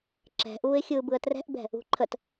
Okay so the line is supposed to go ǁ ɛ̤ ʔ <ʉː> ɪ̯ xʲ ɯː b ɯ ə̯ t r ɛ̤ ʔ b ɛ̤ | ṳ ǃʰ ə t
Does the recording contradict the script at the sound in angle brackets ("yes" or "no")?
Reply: yes